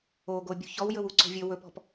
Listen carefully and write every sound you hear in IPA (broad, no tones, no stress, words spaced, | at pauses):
oɡo bʲṳçɔwjɵw uǀo̤vʲɵ wɵpɔ̤p